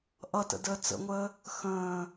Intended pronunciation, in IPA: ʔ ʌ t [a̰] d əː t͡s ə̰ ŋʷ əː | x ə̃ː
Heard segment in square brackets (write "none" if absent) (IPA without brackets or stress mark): ə̰